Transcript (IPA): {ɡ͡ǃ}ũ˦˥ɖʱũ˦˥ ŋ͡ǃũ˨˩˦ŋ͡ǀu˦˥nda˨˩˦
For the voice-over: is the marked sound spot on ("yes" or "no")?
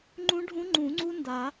no